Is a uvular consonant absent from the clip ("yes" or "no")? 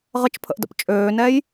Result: no